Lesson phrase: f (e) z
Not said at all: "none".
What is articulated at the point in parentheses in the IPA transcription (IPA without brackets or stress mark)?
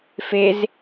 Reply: e